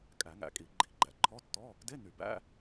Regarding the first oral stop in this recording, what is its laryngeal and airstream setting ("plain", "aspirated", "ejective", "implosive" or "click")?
ejective